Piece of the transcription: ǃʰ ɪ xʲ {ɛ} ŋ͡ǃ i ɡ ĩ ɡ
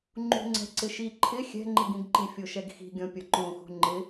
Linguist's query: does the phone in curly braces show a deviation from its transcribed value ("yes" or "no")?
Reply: yes